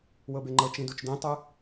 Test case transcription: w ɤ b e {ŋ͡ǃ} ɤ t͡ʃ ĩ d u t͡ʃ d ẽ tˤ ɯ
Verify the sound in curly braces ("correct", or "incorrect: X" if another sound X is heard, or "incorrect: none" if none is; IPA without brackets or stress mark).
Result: correct